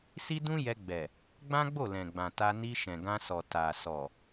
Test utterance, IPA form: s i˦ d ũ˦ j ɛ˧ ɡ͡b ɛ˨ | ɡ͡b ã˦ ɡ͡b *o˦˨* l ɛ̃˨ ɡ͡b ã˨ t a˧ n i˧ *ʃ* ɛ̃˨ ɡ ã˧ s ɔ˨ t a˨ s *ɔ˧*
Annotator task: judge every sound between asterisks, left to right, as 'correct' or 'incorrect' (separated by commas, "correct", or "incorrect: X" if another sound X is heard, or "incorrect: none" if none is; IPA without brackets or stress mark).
correct, correct, incorrect: ɔ˨